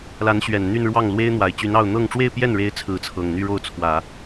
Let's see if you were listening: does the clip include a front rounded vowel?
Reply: yes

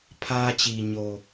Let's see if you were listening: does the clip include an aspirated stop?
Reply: yes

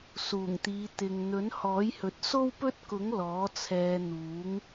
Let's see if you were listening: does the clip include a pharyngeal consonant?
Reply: no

